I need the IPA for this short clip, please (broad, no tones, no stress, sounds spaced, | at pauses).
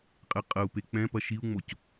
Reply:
qʼ ɛ qʼ ɐ u̯ p e k͡p ɛ̃ p ɐ ʃ i u̯ ŋ͡m o c